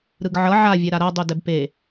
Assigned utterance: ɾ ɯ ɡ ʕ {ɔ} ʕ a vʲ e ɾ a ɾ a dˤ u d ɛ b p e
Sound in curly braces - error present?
yes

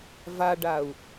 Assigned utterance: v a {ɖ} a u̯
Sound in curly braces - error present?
no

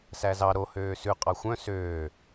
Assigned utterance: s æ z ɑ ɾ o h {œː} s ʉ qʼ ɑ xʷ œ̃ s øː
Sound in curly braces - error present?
yes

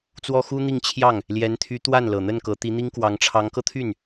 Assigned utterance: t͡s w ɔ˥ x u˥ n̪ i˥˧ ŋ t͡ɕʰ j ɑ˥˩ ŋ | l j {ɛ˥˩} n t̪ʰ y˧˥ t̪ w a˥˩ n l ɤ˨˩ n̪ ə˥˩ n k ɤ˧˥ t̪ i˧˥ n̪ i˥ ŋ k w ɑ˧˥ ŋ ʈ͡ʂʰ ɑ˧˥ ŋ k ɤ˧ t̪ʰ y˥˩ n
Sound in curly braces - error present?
yes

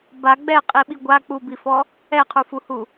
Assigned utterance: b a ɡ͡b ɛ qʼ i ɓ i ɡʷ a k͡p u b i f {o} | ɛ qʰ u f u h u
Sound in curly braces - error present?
yes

